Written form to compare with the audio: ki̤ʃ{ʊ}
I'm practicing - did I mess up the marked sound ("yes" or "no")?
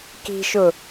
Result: no